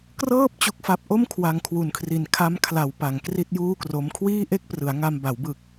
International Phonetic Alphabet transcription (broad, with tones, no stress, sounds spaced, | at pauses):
k r ɤː˥˩ p̚ t͡ɕ u˦˥ k̚ f a˦˥ p̚ ʔ o˥˩ m kʰ w a˧ ŋ kʰ w u˨˩ n kʰ r i˨˩ n kʰ a˦˥ m kʰ l a˩˦ w p a˩˦ ŋ k r i˥˩ t̚ j uː˥˩ k r o˦˥ m kʰ w iː˥˩ ʔ e˥˩ k̚ p r ɯ˩˦ a̯ ŋ a˧ m b a˩˦ w b ɯ˨˩ k̚